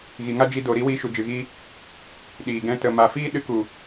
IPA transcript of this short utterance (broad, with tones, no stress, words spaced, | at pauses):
ɣi˨ŋa˦d͡ʒi˧ do˨ɾi˦ wiː˧ʃu˨ d͡ʒɨ˨ɣiː˧ | ɗiː˨ɡɛ̃˧ tə˨ma˨fiː˦ ɗɨ˧ku˨